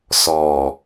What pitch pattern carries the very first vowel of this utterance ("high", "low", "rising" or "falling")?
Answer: low